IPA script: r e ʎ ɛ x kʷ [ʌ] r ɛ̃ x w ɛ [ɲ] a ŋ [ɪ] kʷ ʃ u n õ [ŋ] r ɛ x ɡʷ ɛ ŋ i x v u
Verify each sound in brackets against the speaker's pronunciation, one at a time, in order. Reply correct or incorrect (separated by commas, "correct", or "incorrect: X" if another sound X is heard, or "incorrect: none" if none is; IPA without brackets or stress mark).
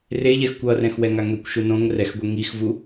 correct, incorrect: ŋ, incorrect: ɛ, correct